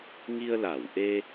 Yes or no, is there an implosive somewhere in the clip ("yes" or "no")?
no